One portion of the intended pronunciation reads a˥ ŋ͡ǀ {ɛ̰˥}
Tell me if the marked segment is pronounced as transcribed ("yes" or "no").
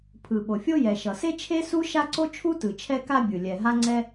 no